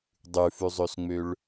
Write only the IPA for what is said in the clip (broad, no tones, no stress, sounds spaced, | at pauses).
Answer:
dˤ ʉ f ʉ zˤ ø s ŋ͡m ø ɭ